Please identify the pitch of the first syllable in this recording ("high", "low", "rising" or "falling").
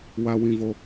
high